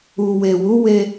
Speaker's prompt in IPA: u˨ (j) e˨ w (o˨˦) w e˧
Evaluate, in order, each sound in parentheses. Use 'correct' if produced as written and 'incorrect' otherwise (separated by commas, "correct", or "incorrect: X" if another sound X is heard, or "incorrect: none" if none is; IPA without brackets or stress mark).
incorrect: w, incorrect: u˨˦